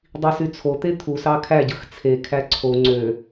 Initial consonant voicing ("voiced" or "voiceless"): voiced